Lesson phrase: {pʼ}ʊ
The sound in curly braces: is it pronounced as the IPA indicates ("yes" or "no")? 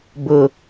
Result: no